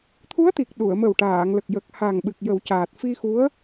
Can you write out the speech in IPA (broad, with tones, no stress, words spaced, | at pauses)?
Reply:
t̪ʰu˧˥ə̯t̪i˨˩k̚ ɗu˨˩˨ə̯mə˨˩wʈaː˨˩˨ŋ lə˨˩k̚jə˨˩k̚ha˨˩ŋɓɨ˨˩k̚ jə˨˩˦wcaː˨˩t̚fi˧xu˧˥ə̯